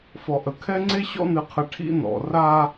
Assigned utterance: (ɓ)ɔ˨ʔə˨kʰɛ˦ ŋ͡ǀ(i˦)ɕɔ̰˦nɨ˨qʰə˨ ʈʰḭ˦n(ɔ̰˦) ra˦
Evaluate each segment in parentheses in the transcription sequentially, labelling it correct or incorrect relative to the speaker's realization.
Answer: incorrect: f, incorrect: e˦, incorrect: ɔ̰˨

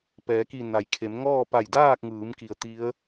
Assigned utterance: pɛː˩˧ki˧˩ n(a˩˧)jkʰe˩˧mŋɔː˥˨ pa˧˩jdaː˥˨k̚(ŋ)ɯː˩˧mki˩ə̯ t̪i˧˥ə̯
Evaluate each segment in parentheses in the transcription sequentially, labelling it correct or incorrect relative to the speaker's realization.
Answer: correct, correct

